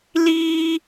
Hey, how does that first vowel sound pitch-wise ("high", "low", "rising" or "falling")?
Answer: high